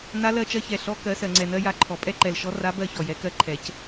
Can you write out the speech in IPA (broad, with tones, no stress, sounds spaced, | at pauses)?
n a˧˥ l ɜ˧ t͡ʃ ɜ˧ ç ɛ˩ ɬ ɔ˧˥ k ɜ˩˧ s ɜ˩ ŋ͡ǀ ɛ˩ n ɜ˧ j a˧˥ ǃʰ ɔ˩ pʼ ɛ˥ ǃ ɛ˩ l ʃ ɔ˧˥ r a˧˥ b ɜ˧ ç ɔ˩ j ɛ˩˧ k ɜ˧˥ ǃʰ ɛ˩˧ c